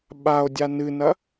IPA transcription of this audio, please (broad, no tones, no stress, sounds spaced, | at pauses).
ɓ a o̯ dʲ a n ɨ n ɐ